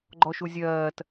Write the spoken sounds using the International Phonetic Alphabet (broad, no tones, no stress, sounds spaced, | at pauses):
ɡ͡ǃ ɔ ʃ u zʲ ɜː t